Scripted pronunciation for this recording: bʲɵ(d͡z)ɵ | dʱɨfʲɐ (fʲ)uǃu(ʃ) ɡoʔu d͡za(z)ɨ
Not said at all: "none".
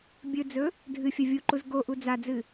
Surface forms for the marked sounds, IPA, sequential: d͡z, vʲ, z, d͡z

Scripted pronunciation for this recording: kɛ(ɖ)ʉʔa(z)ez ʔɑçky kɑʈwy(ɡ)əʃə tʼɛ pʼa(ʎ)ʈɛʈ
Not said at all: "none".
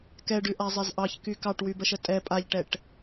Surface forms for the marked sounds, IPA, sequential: ɖ, zˤ, b, ʎ

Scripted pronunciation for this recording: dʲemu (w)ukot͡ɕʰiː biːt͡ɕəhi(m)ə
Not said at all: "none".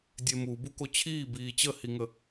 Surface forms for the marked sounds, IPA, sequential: b, ŋ

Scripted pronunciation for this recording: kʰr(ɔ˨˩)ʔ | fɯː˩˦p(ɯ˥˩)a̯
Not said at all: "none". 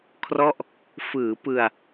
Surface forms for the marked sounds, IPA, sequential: ɔ˥˩, ɯ˧

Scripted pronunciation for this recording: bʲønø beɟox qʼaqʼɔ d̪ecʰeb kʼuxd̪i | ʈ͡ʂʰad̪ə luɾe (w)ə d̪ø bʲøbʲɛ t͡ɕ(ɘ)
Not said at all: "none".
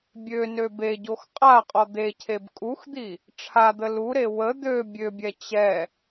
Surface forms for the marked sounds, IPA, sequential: w, ɛ

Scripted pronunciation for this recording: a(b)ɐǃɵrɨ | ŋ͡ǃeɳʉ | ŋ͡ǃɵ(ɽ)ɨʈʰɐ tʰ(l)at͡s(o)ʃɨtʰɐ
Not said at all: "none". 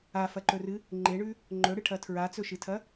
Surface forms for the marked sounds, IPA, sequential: f, ɽ, ɹ, ɵ

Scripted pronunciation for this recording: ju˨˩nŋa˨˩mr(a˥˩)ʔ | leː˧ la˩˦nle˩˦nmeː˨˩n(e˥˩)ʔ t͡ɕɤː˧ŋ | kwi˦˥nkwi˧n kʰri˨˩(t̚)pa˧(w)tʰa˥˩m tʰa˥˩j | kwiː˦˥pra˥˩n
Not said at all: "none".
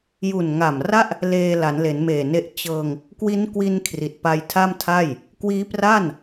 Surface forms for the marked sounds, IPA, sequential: a˥˩, e˦˥, t̚, j

